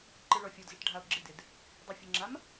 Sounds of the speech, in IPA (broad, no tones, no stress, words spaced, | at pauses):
ǃɯɭɔfʲɔdzɨʈ ɖʱao̯ɡ͡ǁɪdɪd | dˤefʲəŋ͡ǁam